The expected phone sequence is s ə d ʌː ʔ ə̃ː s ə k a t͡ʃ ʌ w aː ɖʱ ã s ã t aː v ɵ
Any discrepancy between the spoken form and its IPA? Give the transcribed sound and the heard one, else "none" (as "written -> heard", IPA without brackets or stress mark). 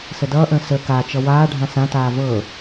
ɵ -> ɤ